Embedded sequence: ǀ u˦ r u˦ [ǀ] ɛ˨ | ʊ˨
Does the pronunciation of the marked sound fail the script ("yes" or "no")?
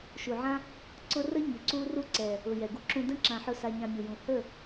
no